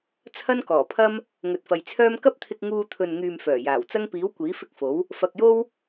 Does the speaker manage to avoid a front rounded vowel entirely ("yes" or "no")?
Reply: no